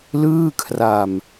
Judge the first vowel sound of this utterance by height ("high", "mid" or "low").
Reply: high